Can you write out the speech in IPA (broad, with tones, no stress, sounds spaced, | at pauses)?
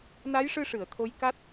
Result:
n a˧˥ j ʂ ɨ˧ ʂ ɨ˨˩˨ ə̯ t̪ʰ o˧˥ j k a˦˥ t̚